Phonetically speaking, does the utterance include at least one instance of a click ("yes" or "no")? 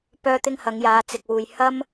no